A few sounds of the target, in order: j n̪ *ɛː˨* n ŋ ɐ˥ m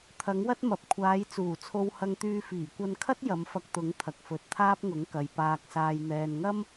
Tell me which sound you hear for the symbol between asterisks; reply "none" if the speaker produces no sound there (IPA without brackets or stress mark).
ɛː˨